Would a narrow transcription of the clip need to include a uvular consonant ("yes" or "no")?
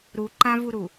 no